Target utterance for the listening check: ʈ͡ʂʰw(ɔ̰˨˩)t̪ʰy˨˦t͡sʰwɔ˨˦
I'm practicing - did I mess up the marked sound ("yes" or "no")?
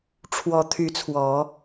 yes